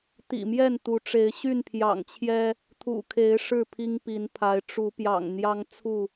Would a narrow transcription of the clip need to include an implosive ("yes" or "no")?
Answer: no